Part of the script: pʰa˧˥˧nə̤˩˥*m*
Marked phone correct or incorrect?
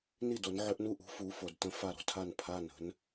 incorrect